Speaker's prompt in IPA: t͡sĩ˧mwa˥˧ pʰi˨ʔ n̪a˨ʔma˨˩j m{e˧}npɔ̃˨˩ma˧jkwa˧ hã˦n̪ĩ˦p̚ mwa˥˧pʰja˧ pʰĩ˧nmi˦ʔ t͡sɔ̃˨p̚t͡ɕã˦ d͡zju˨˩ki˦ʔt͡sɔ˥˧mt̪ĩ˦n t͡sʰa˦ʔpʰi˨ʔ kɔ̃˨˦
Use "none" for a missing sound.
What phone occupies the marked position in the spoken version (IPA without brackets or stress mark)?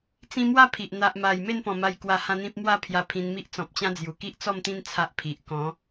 e˥˧